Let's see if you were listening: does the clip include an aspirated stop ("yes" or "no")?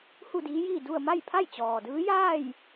yes